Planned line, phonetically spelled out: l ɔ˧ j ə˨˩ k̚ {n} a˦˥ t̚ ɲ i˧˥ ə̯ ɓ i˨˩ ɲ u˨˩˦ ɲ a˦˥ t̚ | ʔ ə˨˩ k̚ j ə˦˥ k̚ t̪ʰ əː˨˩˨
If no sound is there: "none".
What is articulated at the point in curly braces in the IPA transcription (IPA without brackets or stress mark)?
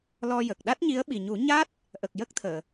ɗ